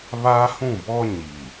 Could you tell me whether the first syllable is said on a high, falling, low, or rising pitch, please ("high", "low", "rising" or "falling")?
high